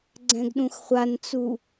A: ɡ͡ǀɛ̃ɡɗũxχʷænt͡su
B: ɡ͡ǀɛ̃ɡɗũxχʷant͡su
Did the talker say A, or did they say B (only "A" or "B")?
B